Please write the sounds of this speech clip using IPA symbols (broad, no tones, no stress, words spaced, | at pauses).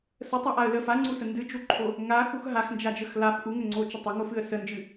sətˤaʔaə̯ lə faŋ͡ǀusə ndɨd͡ʒuǃʰo | ŋaxux ɦaxnd͡ʒad͡ʒəx laf ʔuŋəŋ͡ǀot͡ʃə tˤəŋofɨə̯ sənd͡ʒɨ